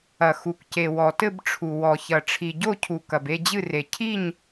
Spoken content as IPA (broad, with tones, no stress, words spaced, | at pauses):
ɐ˩ xu˩kce˩ wɔ˩tɘ˦˨bʈ͡ʂʰu˩ wɔ˩çɐ˩ ʈ͡ʂʰi˩ɟo˦˨cʰu˩ kɐ˩be˦˨d͡ʑɨ˦˨re˩ cʰi˦˨ɲ